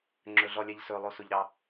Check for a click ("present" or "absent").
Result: present